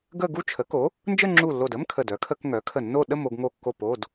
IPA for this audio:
ɡə˥˧ ɡu˥˧t͡ʃʰə˩˥ko˩˥ | nd͡ʒə˥˧ŋ͡ǁu˧˩lːo˧˩də˧˥˧m kʰə˧˩dœ˩˥kʰə˧˥˧kŋœ˩˥ kʰə˧˩nːo˥˧ ɗə˥˧mo˥˧ɡŋo˧˩kːo˧˩p o˩˧˩d

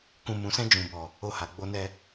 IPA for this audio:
kũ˨mũ˨sɛ̃˧ d͡ʒũ˨bɔ˨ | o˧ha˨ɡ͡bo˧nɛ˧

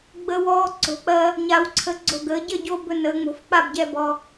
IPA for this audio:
ɡ͡bə˧wɔː˧ ǀo̤˩˥k͡pɜ˧ | ɲa˧wǀʰə˧ ɡ͡ǀo̤˧˩ɡəː˩˧ɟə˥˩ɟo˧ bɵ˧nəː˩˧ŋ͡mo̤˩˥f k͡pa˥˩bɟɛ˧bɔ˩˧˩

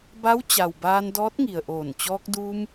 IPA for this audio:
ba˧˥wt͡ɕa˩wbaː˧n dɔː˧˥t̚ŋi˩ə̯ʔoː˧˩n t͡ɕɔː˧k̚duː˧m

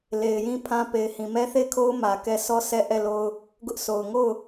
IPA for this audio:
le˨ɪ̯ jĩ˦pʰã˦pe˨ɪ̯hĩ˨ mɛ˦θe˦˨ɪ̯kʰo˦ʊ̯ mä˨kɛ˦˨ sɔ˦˨ sɛ˦˨ʔɛ˦˨lo˦ʊ̯ | ɡʊ˦ʔso˨ʊ̯ ŋo˦˨ʊ̯

